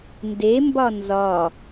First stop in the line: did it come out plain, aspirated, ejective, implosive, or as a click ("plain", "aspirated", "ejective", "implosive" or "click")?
plain